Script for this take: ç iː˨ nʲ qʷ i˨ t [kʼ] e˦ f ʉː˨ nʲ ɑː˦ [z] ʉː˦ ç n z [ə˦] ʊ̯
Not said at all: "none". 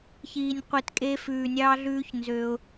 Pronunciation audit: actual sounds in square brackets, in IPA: kʼ, ɮ, ø˦

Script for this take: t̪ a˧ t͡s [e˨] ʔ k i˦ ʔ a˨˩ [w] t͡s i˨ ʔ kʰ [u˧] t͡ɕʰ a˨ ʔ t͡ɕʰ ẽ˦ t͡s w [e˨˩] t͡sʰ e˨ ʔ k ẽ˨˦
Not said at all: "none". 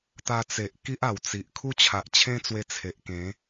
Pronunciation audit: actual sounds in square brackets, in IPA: e˨, w, u˦, e˧

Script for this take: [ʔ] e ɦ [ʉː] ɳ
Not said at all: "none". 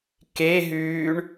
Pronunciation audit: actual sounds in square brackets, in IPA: k, ʉː

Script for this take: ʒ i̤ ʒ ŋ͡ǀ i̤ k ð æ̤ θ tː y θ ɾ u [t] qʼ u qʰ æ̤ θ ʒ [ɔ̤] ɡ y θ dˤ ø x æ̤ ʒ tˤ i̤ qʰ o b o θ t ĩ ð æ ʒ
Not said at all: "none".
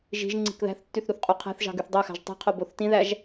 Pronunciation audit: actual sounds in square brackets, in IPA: θ, ɑ̤

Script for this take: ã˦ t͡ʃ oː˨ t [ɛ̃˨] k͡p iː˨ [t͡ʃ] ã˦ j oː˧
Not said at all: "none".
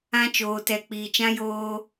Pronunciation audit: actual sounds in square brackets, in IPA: ɛ˨, t͡ʃ

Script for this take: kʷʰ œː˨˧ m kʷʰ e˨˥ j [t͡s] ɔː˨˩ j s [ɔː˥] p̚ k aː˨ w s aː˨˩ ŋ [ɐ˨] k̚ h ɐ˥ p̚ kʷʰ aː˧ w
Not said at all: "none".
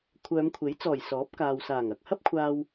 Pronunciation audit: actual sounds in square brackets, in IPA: t͡s, ɔː˨˥, ɐ˨

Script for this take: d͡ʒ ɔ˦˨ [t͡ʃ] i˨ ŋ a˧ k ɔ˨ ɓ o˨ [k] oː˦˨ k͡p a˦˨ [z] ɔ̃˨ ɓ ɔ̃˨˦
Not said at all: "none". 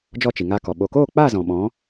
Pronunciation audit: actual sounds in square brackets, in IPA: t͡ʃ, k, z

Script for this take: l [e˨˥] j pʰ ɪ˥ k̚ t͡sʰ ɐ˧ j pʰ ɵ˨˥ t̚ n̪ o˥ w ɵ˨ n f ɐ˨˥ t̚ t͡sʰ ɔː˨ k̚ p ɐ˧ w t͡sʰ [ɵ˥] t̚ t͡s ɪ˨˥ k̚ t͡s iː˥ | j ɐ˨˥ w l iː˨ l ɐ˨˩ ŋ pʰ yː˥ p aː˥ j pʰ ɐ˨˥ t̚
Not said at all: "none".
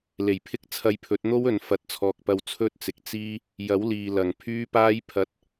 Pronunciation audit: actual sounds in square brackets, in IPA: e˨˩, ɵ˥

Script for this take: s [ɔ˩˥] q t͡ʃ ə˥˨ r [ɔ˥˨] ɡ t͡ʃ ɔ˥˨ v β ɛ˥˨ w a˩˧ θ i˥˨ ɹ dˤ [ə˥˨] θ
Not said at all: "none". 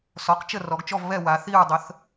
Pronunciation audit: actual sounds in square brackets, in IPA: ɔ˩˥, ɔ˩˧, ə˩˥

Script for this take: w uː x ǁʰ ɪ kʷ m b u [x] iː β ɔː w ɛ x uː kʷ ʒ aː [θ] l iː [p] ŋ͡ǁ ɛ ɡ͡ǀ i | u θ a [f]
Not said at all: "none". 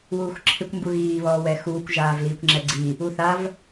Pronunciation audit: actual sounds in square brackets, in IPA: ɣ, v, kʷ, v

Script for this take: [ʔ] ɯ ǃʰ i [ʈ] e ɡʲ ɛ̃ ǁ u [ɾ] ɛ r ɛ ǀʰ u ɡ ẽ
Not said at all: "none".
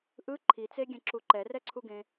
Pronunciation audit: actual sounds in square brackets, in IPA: ʔ, t͡s, ǃ

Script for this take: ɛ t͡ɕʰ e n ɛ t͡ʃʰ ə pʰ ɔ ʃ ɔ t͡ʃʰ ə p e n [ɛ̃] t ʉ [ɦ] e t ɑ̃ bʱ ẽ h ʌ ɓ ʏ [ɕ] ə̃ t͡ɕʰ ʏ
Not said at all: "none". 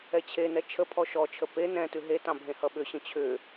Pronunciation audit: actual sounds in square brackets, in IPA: ɛ̃, ɦ, ɕ

